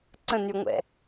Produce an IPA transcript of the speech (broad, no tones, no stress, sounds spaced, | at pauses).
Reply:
ǀ ə̃ n y ŋʷ ɛ̰